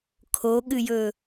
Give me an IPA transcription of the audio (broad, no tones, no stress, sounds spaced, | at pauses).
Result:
kʰ o ɠ ɨ j ɵ